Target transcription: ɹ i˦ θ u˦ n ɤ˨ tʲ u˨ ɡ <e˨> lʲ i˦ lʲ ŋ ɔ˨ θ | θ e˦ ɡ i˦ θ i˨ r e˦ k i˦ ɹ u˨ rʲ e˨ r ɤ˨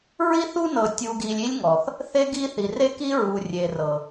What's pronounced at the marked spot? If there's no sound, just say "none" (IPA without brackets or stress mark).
i˨